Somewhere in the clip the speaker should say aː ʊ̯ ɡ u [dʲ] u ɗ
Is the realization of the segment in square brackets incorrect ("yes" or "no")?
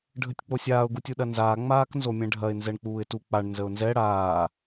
yes